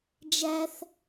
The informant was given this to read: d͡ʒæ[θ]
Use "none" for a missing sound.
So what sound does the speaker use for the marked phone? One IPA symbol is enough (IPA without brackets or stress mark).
θ